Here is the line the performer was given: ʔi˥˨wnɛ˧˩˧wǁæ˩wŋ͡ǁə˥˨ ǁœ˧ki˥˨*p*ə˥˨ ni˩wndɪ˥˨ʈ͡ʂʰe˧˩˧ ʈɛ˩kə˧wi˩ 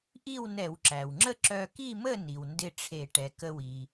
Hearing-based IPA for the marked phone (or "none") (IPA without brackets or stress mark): m